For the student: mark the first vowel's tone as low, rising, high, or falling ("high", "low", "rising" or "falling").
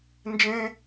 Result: high